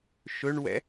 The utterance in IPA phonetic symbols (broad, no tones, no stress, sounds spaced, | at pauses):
ʃ ɵ ɳ w ɛ̰